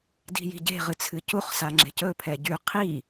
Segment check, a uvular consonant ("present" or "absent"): present